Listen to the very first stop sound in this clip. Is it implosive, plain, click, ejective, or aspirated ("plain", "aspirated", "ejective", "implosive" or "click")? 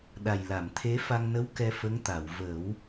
implosive